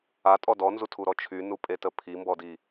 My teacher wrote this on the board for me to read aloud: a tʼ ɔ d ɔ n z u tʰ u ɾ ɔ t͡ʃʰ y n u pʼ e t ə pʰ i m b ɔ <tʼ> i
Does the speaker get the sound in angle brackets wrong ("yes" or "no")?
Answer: yes